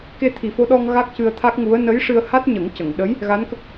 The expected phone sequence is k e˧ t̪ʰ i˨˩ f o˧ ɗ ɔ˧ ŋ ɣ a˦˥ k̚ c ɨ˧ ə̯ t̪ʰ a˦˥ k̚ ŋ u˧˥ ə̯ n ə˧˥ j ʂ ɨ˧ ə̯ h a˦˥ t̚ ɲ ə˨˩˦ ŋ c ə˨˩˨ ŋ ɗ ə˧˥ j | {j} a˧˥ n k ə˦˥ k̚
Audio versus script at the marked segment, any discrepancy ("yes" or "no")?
yes